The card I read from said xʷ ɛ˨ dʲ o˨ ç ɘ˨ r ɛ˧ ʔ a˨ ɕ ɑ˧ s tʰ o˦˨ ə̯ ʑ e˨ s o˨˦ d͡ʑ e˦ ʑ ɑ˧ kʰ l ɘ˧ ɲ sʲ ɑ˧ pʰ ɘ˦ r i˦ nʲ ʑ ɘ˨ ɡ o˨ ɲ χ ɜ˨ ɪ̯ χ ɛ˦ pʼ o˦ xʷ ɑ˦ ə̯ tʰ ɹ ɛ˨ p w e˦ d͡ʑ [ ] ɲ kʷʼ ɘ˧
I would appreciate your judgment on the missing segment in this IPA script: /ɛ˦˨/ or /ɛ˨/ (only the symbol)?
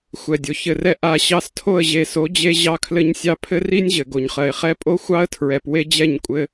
ɛ˦˨